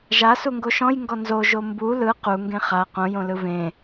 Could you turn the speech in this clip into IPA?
ʒ a s u ŋ ɡ o ʃ ɔ̃ j ŋ ɡ ɔ n z o ʒ o m b u l ɯ q u ŋ ɡ ẽ χ a q õ j õ l ɯ v ẽ

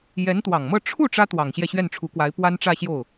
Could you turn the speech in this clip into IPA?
j ɛ˧˥ n t̪ w ɑ˨˩ ŋ m ɤ˥˧ ʈ͡ʂʰ u˥˩ ʈ͡ʂ ä˥ t̪ w ɑ˨˩ ŋ ɕ j ɛ˥˧ ɕ ɥ ɛ˥˩ n ʈ͡ʂʰ u˧˥ k w a˧˥ ɪ̯ p w a˥ n ʈ͡ʂ ä˥˧ ɕ j o˥˩ ʊ̯

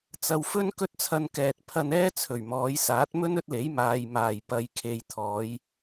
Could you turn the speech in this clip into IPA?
t͡s ɐ˨ w f ɵ˥ n k ɵ˥ t̚ t͡sʰ ɐ˧ n k ɛː˨ t̚ pʰ ɐ˧ n ɛː˥ t͡sʰ ɵ˨˩ ɥ m ɔː˨˧ j s aː˨˥ t̚ m ɵ˥ n ɵ˥ t̚ l e˨˥ j m aː˨ j m aː˨˩ j p ɐ˨ j kʰ e˨ j t̪ʰ ɔː˨˧ j

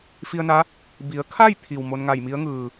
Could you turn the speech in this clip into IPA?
f i˧ ə̯ n a˧˥ | b i˩˧ ə̯ kʰ a˥˨ j t̪ʰ i˩ w m o˧ n ŋ a˧˩ j m i˧˥ ə̯ ŋ ɯː˩

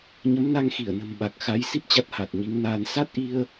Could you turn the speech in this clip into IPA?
ɲ ə˨˦ m n a˧ ŋ x i˧˩ ə̯ n ə̤˨˩ m ɓ a˨˩ k̚ x a˨˦ j s i˦˥ p̚ t͡ɕ a˦˥ t̚ h a˨˩ t̚ ɲ i˨˦ ŋ n aː˧ n s a˦˥ t̚ ʔ i˧ ə̯

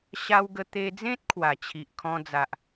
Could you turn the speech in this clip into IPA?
ɕ a˧ w ɡ ə˧ t̪ e˧ d͡z ẽ˦ t̚ kʰ w a˨˩ t͡ɕʰ i˨ ʔ kʰ ɔ̃˧ d͡z a˨ ʔ

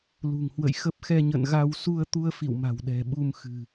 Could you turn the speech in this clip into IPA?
l ṳ˨˩ ŋ h w ə̰˧˨ j x ə˦˥ p̚ x ɛ˧ ɲ ə̰˧˨ n ɣ a˧ w s u˧ ə̯ t̪ u˧ ə̯ f ḭ˧˨ w m a̤˨˩ w ɗ ɛ̤˨˩ ɓ u˧ m x ɨ̤˨˩

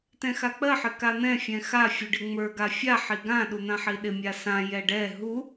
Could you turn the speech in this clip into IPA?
t ɛ̃ x a k͡p ɜ ħ ɪ k a n̪ ɛ̃ fʲ ɛ̃ x a fʲ u ɖ ɪ ŋ͡m ə˞ ɡ a fʲ a ħ i ɡ ã ɗ u n̪ ã ħ i ɗ ɪ mʲ a s ã j ɛ ɖ ɛ ɦ u

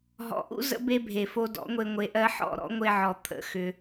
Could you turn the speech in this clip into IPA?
ɦ ɔ̰˨ ʔ ṵ˦ z ə̰˧ b e˧ bʱ e˨ f o˧ d ɔ̰˨˦ ŋʷ e˧ ŋʷ e˨ ʔ ɜ˧ ħ ɔ̰˦˨ ɾ ɔ̰˦ ŋʷ e˧ ʕ ɔ˨ t̪ʰ ə̰˨˦ x ʏ˧

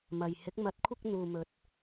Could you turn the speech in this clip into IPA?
m ɐ˨ j h ɪ˨˥ k̚ m ɐ˨˥ t̚ kʷʰ ɪ˧ k̚ n̪ uː˨ m ɵ˨ t̚

